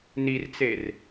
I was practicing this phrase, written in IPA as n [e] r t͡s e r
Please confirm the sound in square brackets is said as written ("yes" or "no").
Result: no